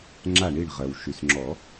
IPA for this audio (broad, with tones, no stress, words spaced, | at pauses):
ŋ͡ǁa˧˩ɳi˧˩ɳ ʁɜ˩w ʃy˩sŋ͡ǁɔ˨˩˦